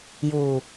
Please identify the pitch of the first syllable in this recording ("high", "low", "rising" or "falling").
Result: low